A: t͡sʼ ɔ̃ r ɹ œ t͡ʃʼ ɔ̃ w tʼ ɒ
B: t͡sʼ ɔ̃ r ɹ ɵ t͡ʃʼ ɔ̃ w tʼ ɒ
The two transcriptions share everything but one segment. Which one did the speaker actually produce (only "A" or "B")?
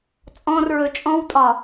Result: B